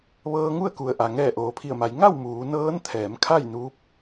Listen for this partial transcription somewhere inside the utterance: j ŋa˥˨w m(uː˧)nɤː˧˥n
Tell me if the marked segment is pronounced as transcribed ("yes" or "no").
no